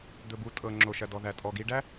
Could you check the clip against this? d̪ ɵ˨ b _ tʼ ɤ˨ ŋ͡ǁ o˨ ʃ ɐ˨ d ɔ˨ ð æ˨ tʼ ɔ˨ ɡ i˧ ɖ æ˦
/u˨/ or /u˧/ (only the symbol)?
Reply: u˨